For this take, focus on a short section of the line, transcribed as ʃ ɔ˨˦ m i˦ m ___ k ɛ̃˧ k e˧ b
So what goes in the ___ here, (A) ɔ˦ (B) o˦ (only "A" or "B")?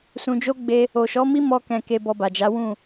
A